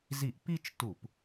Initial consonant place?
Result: alveolar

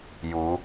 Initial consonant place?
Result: palatal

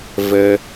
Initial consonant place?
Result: labial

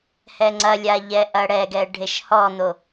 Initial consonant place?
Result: glottal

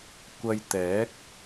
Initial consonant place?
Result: velar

